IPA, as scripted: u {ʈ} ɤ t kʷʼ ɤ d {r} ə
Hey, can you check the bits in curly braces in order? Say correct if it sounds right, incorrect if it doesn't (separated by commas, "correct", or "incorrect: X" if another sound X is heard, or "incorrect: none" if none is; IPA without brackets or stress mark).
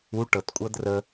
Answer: correct, correct